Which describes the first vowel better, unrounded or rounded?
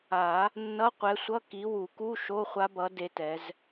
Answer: unrounded